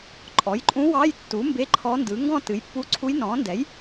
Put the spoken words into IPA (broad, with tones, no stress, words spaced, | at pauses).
ǃʼɔ˩˥jǃʼũ˧˥ wɑ˧˥˧jtːu˩˥ mbe˧˥˧ǃʰɔ˧˥ndɯ˩˥ ŋɡɔ̃˦˨ tɨ˩˥jpːu˧˥ǀʰu˧˥j nɔ̃ː˩˥ndɛ˩˥j